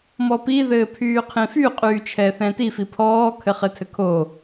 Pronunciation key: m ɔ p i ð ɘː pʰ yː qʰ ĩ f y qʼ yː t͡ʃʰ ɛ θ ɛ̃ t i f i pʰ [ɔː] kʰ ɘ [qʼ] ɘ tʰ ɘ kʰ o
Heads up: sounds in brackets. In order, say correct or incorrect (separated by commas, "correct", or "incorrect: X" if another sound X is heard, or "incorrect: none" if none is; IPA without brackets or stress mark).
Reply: correct, incorrect: χ